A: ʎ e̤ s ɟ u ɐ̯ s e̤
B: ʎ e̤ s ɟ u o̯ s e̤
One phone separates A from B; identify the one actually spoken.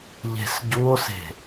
B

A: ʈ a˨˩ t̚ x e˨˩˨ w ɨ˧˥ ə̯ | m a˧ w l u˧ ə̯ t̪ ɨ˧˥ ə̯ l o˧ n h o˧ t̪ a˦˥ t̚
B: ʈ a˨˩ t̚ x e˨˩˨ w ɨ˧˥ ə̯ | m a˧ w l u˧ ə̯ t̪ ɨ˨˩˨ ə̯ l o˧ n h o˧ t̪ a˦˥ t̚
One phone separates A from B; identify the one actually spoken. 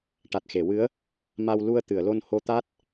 B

